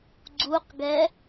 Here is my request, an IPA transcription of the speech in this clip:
ɡ͡ǀ u q ɡ ɛ

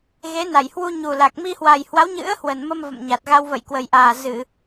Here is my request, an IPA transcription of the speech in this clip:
ɣ e˨˦ n a˧˩ j h w u˧ ɲ u˨˩ l a˨˩ k̚ m i˧ h w a˨˩ j h w a˨˦ w ɲ ɨ̰˧˥ ə̯ h w ə˨˩ n m ə˧ m v ə̰˧˨ m ɲ a˨˩ t̚ ɣ a˧ w v ə̰˧˨ j k w ə˨˩ j ʔ aː˨˩ z ɨ˧˩˨

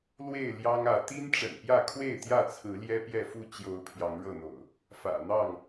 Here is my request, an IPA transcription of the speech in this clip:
l w e˥˨ ɪ̯ l j ɑ˦ ŋ ä˨˦ t̪ i˦ n ʈ͡ʂ ə̰˨˩ n p j ä˥˨ kʰ w e˥˨ ɪ̯ t̪ j ä˥˨ t͡sʰ ɹ̩˨˦ l j ɛ˦ p j ɛ˥˨ f u˥˨ t͡ɕ j o˨˦ ʊ̯ pʰ j ɑ˨˦ ŋ ɻ ɤ˥˨ n̪ o̰˨˩ ʊ̯ | f ä̰˨˩ n̪ ɑ˥˨ ŋ

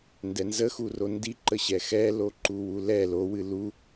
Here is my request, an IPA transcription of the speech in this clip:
n d ɛ n z ə x u r o n d i ǃ ə ɕ ɛ x ɛ l o ǃ u w u l ɛ l o w ɨ l u

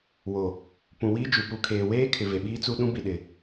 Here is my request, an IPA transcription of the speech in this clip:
w o˨ | p ũ˨ w i˦ d͡ʒ u˨ p u˨ kʰ eː˨ w eː˦ kʰ ɪ˨ v e˨ ɓ iː˦ t͡s u˦ ɗ ũ˦ b i˨ ɗ ɪ˨

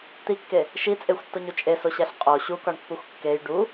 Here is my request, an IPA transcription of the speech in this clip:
t̪ i kː e | ʃ i t͡sʼ e xʷ tː o ɲ u t͡ʃʼ e s o ɕ æ ɬ qʼ o ɕ u k ɒ ɳ pː u xʷ kː e j ɖ u

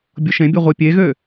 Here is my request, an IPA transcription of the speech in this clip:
bʲ o ʃ ẽ bʲ ɯ ʁʷ i pʲ e ɣ ø

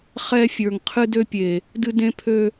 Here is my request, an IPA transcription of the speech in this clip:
χ ɛ˧ fʲ ə˞˨ ŋ qʰ ɨ˧ d ø˧ pʲ e˨ | d ɨ˧ d ẽ˧ pʰ ø˧

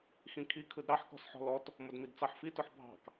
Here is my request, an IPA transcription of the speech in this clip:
x ĩ kʰ i kʰ ɯ d ɾ ɑ ħ k ɔ̤ s ħ ɔ̤ l ɔ t | m ʊ d m i d t͡s ɑ ħ f i t ʊ ħ bʱ ɑ̤ k

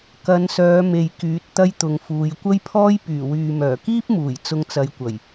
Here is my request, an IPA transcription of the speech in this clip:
k ɐ˨˧ n s œː˨˧ m e˨ j k yː˨˥ t̚ t̪ ɐ˥ j t̪ ʊ˨ ŋ f uː˨˧ j kʷ ɐ˥ j pʰ ɔː˥ j p yː˨˩ w yː˨ m œː˨˩ k iː˥ p̚ m uː˨˩ j t͡s ʊ˧ ŋ t͡s ɐ˨˧ j kʷ ɐ˨˩ j

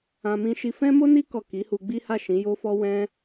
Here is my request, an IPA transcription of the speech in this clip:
ã˦ m ĩ˧ ʃ i˧ f ɛ̃˦ m o˦ n i˦ k ɔ˦˨ k i˨˦ h u˧ ɡ͡b i˦ h a˦˨ ʃ ĩ˨˦ j o˦ f ɔ˦ w ɛ̃˦

